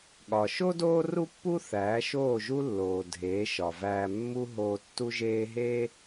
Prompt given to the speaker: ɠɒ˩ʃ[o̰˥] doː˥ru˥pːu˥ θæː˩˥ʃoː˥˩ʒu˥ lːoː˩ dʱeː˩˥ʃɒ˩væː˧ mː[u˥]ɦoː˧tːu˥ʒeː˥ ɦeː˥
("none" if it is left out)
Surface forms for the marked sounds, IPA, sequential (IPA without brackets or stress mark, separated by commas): o˥, u˥